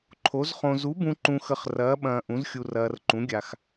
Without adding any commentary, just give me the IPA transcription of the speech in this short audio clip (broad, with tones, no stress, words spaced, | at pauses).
ǃʰo˨˥zχõ˧ zu˨˥bũ˧ ǃũ˧xə˧χrɐː˨˥ ɓɐ̃ː˧ʔũ˨˥zxʲu˧rɐː˧r ǃũ˨˥ɡʲa˧x